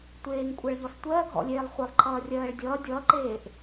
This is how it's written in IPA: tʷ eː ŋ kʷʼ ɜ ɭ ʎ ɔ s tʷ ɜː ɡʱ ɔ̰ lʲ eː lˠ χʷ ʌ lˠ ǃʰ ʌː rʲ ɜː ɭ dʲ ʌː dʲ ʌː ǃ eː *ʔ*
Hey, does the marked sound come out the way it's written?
yes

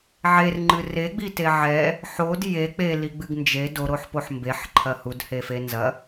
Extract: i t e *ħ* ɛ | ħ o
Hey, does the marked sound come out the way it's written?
no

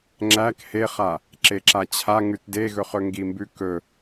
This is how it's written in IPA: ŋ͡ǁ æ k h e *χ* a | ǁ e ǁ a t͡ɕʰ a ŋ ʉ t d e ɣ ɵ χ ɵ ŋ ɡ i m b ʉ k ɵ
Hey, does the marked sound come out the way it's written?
yes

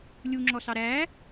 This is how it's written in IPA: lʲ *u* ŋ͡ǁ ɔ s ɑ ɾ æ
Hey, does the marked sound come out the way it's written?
yes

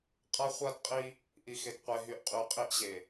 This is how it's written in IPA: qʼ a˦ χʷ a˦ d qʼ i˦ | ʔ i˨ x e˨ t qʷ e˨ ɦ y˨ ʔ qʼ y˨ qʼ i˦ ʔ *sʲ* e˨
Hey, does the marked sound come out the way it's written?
no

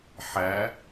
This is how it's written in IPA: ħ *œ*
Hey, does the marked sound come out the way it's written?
no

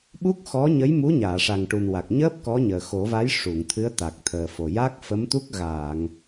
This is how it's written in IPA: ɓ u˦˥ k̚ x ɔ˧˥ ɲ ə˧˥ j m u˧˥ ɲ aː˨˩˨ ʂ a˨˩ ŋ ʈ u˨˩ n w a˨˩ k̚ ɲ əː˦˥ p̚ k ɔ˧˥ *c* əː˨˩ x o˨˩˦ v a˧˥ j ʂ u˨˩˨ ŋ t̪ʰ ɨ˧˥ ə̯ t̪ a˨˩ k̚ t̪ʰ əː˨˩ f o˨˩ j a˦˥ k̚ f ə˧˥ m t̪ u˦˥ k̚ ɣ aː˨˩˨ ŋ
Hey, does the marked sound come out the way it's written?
no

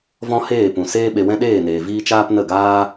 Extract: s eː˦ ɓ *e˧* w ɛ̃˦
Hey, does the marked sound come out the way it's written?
yes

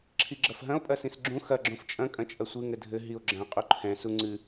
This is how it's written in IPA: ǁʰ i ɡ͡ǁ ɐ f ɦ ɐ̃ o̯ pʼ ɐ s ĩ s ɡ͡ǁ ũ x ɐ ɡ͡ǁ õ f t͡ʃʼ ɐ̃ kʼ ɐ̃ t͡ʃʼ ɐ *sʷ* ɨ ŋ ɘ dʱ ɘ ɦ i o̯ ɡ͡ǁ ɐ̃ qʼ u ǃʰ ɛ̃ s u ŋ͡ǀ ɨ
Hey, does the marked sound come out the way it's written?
yes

